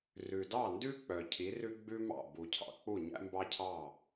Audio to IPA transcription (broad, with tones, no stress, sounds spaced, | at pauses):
r ʉ˩ d ɑ˥˩ n d ʉ˥ k͡p œ˩ cʰ i˩˥ r ʉ˥ ɡ͡b ʉ˥ m ɑ̰˥˩ b u˩ cʰ ɑ̰˧ k͡p u˥˩ ɲ æ̰˥ m b ɑ˥ cʰ ɑ˥˩